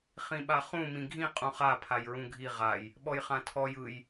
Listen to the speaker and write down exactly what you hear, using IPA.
χĩɓaχũ mĩɡʱĩ qʼũχa pʰajɹũɡʱi ʁaj | ɓɔjχãtʰɔj ɯj

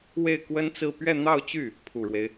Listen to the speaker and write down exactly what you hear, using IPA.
we˥˩ɪ̯ kwə˥nt͡sɹ̩˥˧ pɥɛ˥˧n̪ɑ˥˧ʊ̯t͡ɕy˥˩ | pʰu˨˩ɻwe˦ɪ̯

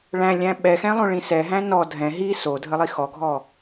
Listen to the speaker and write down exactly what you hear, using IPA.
ɭæ̃lʲæ̃ ɓɛxɛ̃ lˠõɭĩsɛɦæ̃ nɔ dʱɛ̃ ɦi so dʱəlˠixɔɡʱɔ

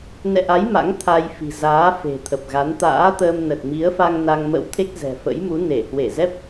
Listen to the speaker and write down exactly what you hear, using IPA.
nɛ̰˧˨ʔa˨˦j ma̰˧˥ŋt̪ʰa˧jfi̤˨˩zaː˨˦ fe̤˨˩t̪ʰə˨˩p̚ɣa˨˦n t̪a̰ː˧˥t̪əː˧mnə˨˩t̚ mi˨˦ə̯fa˧ŋ na˧ŋ mə̰˧˥wt̪ʰe˦˥k̚ zɛ̤˨˩fə̰˧˥j mu˨˦ne˧˩ hwe˧˩zɛ˦˥p̚

